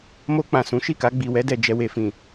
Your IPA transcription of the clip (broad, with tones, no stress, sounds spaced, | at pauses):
m o˧ k͡p ã˨ s ũ˨˦ ʃ i˦˨ k a˧ ɡ͡b i˨ w ɛ˧ d ɛ˨ d͡ʒ ɛ˨ w e˨ f ĩ˨